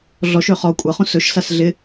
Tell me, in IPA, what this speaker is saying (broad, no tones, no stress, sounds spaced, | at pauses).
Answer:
ɮ ɔ ʃ ø χ ɔ kʷʼ ʌ χ ũ s ɵ ʃ s a s ɮ ɪ